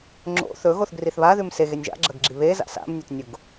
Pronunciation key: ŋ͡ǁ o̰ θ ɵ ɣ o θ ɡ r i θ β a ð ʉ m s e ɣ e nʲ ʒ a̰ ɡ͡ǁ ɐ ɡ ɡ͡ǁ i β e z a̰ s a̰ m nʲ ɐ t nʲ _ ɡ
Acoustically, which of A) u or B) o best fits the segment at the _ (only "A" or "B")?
A